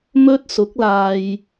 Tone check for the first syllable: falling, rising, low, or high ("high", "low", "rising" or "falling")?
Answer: high